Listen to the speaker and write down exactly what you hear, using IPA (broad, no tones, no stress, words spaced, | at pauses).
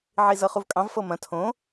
ʕizɤχuvkʼɑ̃v fɤmɐ̃ tʰõ